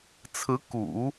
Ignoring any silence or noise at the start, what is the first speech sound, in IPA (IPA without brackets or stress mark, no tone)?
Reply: t͡sʰ